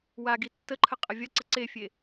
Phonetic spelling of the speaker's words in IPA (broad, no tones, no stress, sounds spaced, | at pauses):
w a ɡ i tː ə ǃʰ ə qʼ ə vʲ ɐ ǀ ə ǀ e fʲ e